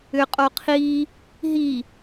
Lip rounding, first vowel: rounded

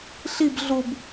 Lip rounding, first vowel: unrounded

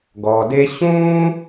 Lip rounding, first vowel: rounded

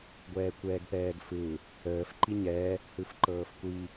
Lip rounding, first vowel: unrounded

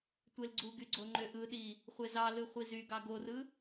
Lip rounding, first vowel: unrounded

